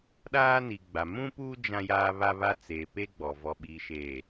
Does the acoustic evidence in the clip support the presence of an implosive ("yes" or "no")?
yes